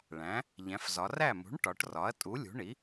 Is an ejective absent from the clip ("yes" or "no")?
no